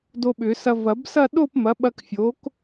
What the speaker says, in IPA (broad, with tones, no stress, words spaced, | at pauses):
do˧ɓʏ˨˩˦sɐ˧ vɐ˨˩˦bsɐ˥˧ ɗo˥˧pmɐ˩˥ɓɐ˧k fʲo˩˥k